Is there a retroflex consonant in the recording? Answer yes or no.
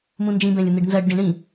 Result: yes